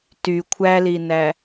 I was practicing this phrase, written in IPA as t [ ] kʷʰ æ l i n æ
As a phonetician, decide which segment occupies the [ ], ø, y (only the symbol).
y